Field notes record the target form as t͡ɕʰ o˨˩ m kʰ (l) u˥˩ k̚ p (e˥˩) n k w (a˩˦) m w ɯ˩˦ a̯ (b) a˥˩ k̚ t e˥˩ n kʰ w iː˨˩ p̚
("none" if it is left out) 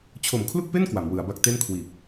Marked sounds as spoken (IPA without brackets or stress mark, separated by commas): l, e˥˩, a˩˦, b